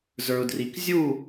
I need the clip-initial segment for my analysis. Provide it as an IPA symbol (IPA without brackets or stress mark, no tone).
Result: z